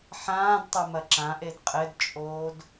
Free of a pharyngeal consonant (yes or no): no